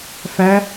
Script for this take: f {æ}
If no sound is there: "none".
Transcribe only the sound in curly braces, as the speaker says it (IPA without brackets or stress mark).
æ